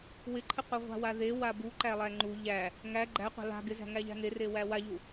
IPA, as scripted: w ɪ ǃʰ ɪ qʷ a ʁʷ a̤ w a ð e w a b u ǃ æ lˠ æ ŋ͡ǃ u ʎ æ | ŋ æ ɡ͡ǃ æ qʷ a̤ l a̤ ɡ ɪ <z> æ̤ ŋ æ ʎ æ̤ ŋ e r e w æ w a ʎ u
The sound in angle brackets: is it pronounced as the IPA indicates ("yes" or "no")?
yes